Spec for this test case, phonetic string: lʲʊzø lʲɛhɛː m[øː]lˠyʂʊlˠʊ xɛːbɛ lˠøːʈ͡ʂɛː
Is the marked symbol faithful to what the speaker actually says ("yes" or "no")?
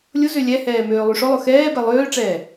yes